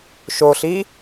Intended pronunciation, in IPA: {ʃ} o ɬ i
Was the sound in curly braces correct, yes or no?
yes